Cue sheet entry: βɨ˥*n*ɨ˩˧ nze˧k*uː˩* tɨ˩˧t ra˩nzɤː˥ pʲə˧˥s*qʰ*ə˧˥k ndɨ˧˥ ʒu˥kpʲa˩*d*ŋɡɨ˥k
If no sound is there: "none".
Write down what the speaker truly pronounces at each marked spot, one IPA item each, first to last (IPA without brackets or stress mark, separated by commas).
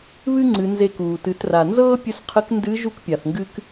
ŋ͡ǀ, uː˩, qʰ, θ